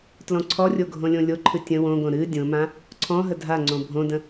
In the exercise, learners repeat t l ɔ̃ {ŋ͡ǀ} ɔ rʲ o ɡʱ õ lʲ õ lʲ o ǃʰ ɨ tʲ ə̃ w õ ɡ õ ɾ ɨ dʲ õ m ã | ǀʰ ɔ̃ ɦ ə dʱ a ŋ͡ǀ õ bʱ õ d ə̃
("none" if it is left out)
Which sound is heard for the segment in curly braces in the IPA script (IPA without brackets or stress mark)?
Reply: ǀʰ